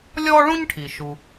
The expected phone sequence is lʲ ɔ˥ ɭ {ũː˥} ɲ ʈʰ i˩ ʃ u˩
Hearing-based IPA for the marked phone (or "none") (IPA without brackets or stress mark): ũ˥